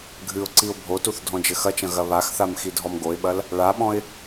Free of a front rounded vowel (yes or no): yes